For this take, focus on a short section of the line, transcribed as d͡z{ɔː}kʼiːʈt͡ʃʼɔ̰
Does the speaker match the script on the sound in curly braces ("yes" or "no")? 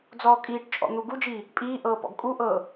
yes